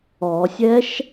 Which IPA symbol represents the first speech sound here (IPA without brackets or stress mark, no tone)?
ɔ